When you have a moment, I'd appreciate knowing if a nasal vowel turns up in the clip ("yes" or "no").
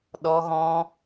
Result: yes